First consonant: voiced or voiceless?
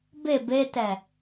voiced